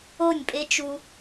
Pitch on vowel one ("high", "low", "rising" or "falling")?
falling